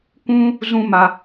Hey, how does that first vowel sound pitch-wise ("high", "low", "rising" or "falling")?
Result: high